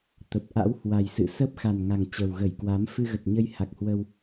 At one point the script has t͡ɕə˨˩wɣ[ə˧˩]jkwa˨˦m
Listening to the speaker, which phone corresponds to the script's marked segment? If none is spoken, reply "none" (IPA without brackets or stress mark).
ə˧˩